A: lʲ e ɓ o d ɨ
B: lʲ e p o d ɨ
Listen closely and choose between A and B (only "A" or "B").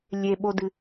A